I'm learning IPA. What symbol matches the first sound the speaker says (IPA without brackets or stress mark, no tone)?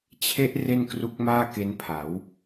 t͡ɕʰ